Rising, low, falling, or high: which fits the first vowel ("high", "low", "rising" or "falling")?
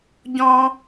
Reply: high